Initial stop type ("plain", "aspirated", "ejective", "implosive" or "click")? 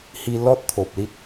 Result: plain